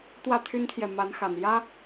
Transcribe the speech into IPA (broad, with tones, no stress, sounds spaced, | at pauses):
t̪ w ä˥˨ t̪ʰ y˦ n t̪ʰ j ɛ˨ m a˨˦ n x a˨˩ n j ä˦